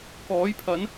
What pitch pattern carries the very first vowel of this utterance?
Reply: rising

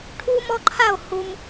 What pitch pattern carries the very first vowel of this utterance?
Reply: high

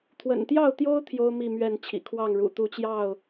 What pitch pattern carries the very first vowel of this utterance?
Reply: low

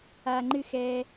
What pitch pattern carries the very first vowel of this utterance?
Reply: high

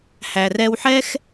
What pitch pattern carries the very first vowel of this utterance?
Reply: low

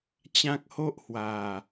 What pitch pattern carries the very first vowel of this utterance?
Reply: high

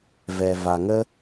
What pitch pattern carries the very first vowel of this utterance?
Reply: low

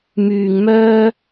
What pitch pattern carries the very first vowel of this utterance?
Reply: low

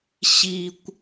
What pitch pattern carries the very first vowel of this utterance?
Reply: low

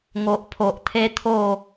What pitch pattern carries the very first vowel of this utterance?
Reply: low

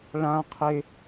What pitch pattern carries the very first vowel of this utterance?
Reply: high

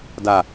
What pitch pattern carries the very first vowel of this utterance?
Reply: low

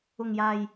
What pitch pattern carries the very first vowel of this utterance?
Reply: low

